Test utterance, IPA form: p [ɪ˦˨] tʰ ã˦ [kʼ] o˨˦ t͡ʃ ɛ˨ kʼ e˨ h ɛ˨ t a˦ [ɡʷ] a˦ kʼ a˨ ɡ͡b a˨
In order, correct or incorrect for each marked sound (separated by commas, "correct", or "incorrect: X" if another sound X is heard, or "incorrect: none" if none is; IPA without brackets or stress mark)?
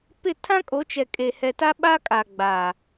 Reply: correct, correct, incorrect: ɓ